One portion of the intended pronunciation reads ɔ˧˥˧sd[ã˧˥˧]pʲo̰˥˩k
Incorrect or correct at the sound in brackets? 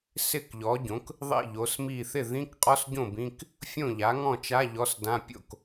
correct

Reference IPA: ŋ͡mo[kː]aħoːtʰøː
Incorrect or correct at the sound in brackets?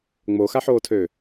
incorrect: x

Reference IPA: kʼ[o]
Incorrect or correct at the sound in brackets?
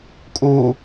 incorrect: u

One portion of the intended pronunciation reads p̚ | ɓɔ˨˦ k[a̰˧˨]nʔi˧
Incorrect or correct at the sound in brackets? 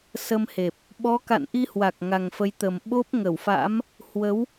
correct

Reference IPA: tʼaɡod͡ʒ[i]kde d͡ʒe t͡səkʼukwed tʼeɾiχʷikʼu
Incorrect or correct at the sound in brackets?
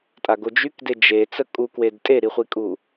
incorrect: y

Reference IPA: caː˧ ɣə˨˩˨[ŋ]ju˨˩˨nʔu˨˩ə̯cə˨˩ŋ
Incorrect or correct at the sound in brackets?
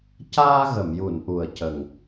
incorrect: m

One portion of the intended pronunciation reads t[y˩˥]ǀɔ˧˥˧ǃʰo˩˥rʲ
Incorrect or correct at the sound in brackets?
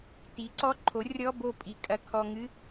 incorrect: i˩˥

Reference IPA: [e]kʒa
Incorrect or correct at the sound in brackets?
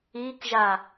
incorrect: i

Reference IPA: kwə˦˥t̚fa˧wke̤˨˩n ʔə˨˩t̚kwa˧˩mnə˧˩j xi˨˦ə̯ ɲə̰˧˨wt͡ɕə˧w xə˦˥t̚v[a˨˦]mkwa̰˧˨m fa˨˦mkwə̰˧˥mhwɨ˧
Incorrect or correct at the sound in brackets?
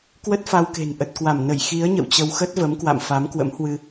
incorrect: ə˨˦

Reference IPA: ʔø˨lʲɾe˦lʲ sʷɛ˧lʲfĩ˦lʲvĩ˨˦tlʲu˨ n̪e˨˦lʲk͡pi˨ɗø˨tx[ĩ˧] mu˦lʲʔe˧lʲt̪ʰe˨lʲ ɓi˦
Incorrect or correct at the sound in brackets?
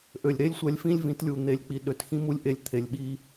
incorrect: ĩ˦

